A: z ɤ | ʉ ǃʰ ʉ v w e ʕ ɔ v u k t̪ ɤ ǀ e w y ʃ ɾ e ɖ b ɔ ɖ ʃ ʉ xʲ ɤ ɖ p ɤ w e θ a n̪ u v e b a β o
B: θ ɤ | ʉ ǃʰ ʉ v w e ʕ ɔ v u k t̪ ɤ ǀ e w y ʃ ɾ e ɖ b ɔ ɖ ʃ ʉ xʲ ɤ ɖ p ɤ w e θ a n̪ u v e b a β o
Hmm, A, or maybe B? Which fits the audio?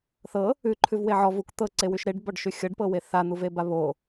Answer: B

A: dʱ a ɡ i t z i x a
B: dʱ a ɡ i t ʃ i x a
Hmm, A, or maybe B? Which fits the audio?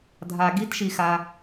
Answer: B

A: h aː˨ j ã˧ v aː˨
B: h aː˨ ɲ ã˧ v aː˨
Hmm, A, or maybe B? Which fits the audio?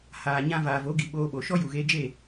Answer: B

